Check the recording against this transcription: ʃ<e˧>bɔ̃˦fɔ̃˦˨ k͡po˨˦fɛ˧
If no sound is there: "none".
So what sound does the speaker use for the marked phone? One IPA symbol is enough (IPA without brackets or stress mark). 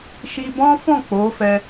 i˧